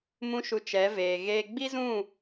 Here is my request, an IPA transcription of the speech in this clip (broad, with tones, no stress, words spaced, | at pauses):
mũ˦ʃu˧t͡ʃɛ˨˦ veː˨ɣeː˧ ɡ͡bi˦zũ˦˨